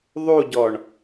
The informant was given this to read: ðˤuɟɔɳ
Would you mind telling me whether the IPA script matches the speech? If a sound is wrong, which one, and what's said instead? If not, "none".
none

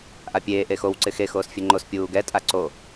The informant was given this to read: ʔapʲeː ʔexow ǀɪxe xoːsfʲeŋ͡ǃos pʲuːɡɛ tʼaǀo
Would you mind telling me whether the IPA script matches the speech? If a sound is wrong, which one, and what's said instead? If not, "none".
none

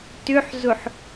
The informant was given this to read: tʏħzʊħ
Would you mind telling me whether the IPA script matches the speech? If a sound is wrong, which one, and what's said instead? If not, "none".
none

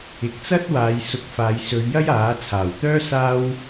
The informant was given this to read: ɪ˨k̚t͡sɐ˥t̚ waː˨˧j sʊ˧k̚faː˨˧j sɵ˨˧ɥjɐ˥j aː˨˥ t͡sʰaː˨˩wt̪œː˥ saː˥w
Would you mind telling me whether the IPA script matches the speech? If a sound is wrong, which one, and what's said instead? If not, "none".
none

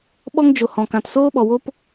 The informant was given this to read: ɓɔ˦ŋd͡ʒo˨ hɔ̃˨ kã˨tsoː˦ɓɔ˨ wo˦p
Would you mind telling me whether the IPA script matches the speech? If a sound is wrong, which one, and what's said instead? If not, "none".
none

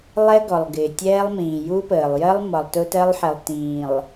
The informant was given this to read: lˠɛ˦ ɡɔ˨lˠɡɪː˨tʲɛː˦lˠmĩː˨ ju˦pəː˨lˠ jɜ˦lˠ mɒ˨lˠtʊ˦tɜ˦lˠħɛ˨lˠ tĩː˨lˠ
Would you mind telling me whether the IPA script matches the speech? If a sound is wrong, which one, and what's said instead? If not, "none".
none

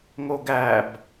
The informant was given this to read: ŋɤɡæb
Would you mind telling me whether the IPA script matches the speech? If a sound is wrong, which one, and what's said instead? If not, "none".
ɤ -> o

